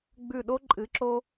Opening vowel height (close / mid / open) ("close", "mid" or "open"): close